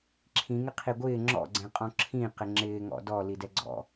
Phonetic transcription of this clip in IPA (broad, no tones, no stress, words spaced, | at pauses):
ǁʰĩŋɪ qʰiɡʷɪː ŋ͡ǁɔ̰ɡ͡ǀɛ̃qʼɔ̃ ǁʰĩ qɪŋ͡ǁɪːŋɔ̰ dɔ lidɛɡ͡ǀɔ̰